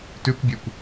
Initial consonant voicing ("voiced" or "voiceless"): voiceless